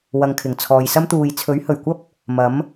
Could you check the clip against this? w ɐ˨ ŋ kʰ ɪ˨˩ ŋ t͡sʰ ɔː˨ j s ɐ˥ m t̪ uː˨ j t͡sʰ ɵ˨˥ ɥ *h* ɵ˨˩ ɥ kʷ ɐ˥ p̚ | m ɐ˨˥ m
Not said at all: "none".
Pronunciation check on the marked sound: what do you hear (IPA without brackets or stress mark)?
h